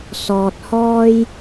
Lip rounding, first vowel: rounded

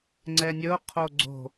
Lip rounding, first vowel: unrounded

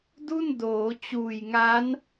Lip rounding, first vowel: rounded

